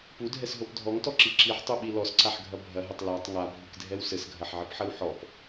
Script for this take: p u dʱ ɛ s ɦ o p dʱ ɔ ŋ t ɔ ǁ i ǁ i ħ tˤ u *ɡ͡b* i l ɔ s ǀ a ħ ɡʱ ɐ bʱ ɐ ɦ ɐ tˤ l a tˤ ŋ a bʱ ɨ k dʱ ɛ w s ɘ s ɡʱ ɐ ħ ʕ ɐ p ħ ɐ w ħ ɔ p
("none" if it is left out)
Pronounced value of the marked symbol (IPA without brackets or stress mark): ɓ